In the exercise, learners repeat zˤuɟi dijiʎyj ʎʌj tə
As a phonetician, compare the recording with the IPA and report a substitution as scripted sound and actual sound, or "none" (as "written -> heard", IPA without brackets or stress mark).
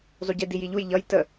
y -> u